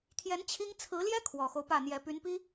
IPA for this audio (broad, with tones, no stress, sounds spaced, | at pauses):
t̪ʰ j ɛ˧˥ n t͡ɕʰ i˥ ŋ t͡sʰ ɹ̩˧˥ l j ɛ˥ kʰ w ɔ˨˩ x o˦ ʊ̯ p ä˥˩ n̪ j ɛ˧˥ p y˧˥ n p i˥